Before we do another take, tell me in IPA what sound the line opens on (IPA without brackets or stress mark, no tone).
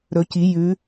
ɾ